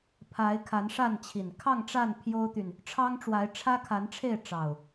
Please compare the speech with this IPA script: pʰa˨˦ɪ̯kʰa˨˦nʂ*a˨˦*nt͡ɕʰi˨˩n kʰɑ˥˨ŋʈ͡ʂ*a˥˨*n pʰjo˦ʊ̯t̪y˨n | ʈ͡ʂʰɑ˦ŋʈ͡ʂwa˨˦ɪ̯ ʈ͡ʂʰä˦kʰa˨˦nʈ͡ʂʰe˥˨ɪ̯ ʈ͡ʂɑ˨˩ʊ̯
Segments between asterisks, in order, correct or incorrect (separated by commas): incorrect, correct